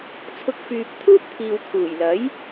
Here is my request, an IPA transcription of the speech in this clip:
t͡sʰʊ˧k̚fyː˨p̚ t̪ʰuː˥p̚t̪ʰiː˨w kʰuː˨˩jlɐ˨˥j

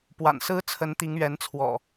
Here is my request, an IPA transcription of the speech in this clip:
pwa̰˨˩nsɹ̩˦ t͡sʰə˨˦nt̪i˨˦ŋɥɛ˨˦nt͡sʰwɔ̰˨˩

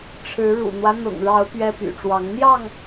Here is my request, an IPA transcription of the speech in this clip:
ʈ͡ʂʰɻ̩˨˦ ɻṵ˨˩n̪wä˦ n̪ʊ̰˨˩ŋɻɑ˨˦ʊ̯ pɥɛ˦py̰˨˩ʈ͡ʂwɑ˨˦ŋ n̪jɑ˥˨ŋ

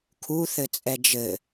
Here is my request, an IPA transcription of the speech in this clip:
kʰu θɘt͡sʼɛd͡ʒɘ

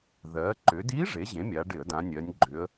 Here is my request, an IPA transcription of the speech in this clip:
ðɜ˩˧ǃʏ˩˧di˧˥ ʐe˩˥ʑẽ˩˥mʲa˩˧ɖɪ˧˩˧ə̯ dã˩˧nʲɜ˩˧nʲɡ͡ǃʏ˩˧ə̯

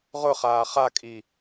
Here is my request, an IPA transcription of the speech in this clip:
ʁʊ χaːχakʼi

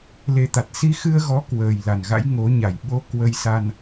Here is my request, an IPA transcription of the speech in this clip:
le˧t̪a˨˩t̚ si˧xɨ˧ə̯ɣɔ˨˦ kwəː˨˩j la˨˩nɣa̰˧˥j ŋo˨˦ɲa˨˩j ɓo˧ kwə˧jsa˧n

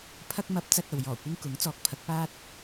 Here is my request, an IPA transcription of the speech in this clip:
pʰɐ˧k̚mɐ˨˥p̚ t͡sɐ˧t̚ɐ˨w jɔː˨˩kʷɪ˧ŋ kʊ˨˥ŋt͡sɔː˨˥k̚pʰɐ˨˥k̚paː˥t̚

